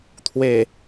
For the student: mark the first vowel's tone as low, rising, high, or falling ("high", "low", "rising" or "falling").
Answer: low